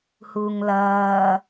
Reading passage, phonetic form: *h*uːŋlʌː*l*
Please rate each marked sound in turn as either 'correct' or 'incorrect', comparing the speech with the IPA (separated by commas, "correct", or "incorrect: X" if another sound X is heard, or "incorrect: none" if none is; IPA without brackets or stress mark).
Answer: correct, incorrect: none